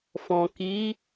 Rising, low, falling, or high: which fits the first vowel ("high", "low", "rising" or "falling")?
low